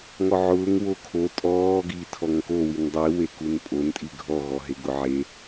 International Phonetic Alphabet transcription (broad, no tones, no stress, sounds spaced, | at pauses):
ŋ ɔ ʕ ʊː ŋ w o kʰ o tʼ ɔː ɡ i tʰ ɔ ŋ k o w i n dˤ i w e k u n pʼ o n tʼ i ɡʱ ɔ ɣ ɔ ɦ e ɡ ʊ ʕ e